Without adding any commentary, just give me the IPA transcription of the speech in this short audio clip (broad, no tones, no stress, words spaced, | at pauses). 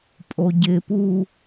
pʼoɟɪpu